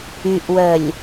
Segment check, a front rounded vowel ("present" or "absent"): present